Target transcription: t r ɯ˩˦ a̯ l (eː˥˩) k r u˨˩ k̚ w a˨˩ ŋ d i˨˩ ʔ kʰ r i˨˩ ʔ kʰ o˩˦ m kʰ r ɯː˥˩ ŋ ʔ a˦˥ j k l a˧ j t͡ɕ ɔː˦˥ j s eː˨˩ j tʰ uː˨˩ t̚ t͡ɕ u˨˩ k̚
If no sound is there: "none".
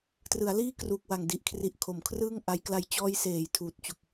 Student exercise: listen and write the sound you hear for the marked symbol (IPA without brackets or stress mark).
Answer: iː˥˩